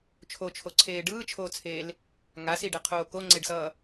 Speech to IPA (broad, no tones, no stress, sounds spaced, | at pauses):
t͡ʃʰ o t͡ʃʰ o ǀʰ eː ɖ ɯː t͡ʃʰ oː t͡sʰ eː l | ŋ a s i ɖ ɛ qʰ oː k o ŋ͡ǀ e ɖ s ʌː